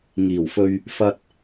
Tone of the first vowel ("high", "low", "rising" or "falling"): low